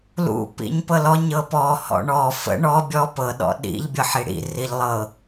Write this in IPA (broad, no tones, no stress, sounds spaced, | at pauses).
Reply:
l ṵ p ḭ ɲ p ɤ l ɔ ɲ ɤ p ɔ h ɔ̰ ɳ ɔ f ə̰ ɳ ɔ bʲ ɔ p ɤ ɗ ɔ̰ ɗ ḭ ʎ bʲ ɤ ħ i ɽ ḭ r i ʎ lˠ ɤ